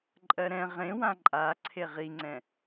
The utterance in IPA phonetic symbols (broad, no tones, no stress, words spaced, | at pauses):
ǃʼɜɾɛ̃ ʁẽwã ǃʼa ǀʰeʁiŋ͡ǀɛ̃